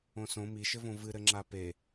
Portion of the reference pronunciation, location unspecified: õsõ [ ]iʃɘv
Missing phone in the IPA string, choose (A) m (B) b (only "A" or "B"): A